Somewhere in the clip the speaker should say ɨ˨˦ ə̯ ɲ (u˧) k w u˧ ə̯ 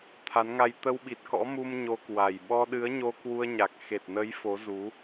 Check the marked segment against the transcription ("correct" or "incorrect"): incorrect